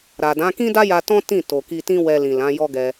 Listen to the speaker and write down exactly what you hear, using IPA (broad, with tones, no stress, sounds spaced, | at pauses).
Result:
ɾ a˨ d ã˨˦ k ĩ˦ d a˦ j a˧ t ɔ̃˦ t ĩ˦˨ t o˨ k i˧ t ĩ˦ w ɛ˧ l ĩ˨ l ã˨˦ j ɔ˦ ɡ ɛ˧